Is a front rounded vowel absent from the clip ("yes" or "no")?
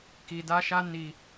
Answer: yes